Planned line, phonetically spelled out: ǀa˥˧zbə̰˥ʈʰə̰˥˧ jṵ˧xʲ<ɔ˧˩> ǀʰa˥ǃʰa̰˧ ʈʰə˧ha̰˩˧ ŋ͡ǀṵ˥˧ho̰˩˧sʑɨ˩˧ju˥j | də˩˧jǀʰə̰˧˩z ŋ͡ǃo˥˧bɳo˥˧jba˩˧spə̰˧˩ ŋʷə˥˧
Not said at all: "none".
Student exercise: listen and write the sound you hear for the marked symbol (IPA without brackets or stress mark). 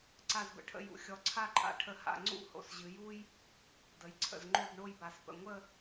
ɔ˧